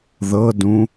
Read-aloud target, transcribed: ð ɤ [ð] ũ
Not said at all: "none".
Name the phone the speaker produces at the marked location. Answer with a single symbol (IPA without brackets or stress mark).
d